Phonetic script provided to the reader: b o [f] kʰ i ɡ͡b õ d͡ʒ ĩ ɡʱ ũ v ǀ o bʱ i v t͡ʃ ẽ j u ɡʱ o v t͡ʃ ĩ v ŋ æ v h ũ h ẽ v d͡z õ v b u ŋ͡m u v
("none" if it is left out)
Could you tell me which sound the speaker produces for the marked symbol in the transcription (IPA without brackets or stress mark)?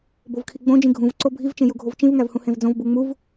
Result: v